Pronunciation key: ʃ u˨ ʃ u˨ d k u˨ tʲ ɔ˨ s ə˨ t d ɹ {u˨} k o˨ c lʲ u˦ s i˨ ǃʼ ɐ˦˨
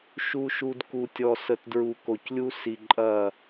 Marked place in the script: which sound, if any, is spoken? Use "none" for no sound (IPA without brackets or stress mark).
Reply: u˨